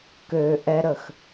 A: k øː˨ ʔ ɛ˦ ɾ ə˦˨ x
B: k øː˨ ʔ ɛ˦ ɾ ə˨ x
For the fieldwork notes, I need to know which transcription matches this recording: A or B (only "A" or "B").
A